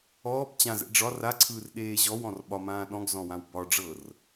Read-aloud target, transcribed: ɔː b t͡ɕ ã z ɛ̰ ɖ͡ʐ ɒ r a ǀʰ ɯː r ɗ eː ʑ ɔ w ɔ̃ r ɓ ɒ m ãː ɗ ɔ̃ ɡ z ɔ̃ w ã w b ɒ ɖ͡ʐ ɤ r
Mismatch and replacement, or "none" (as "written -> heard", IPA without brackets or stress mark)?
none